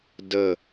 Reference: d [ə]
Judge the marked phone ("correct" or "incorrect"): correct